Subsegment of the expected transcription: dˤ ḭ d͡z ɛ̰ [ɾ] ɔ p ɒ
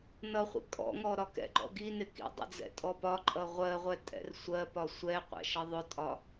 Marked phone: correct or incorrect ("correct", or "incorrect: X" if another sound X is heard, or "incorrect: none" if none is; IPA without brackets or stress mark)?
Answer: incorrect: tʼ